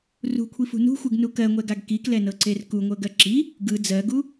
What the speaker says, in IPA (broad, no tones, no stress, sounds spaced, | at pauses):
r ṳ kʷʰ i f ṳ n ṳ xʷ ɯ ɡ n u k ɜ ŋʷ ɛ ɡ a ɡ k i k l ɛ n ɤ ǀ e r k u ŋʷ ɤ ɡ ɜ ǁ i | ɡ ɯ d͡z ɜ ɡ u